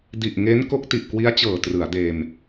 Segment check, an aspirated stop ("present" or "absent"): absent